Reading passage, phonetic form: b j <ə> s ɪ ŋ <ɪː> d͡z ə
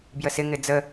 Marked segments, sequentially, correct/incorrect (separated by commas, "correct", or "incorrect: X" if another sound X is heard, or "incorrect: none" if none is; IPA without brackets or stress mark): correct, incorrect: ɪ